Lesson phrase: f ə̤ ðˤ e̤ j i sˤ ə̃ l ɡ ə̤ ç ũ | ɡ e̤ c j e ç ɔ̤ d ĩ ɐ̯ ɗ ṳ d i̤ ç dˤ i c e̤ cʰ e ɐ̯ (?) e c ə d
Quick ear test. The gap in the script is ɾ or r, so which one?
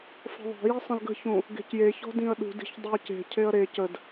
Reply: ɾ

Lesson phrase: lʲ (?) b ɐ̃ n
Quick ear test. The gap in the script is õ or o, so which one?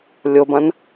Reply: o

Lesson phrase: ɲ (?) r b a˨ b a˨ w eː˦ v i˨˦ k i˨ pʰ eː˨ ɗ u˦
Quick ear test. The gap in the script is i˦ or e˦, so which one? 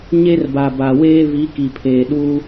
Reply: e˦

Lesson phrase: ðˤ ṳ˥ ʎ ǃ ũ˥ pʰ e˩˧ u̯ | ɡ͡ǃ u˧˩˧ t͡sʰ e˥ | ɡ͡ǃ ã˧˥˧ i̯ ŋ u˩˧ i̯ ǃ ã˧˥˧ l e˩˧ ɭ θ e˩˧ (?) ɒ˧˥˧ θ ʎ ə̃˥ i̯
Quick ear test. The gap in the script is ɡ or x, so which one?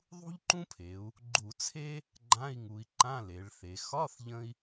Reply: x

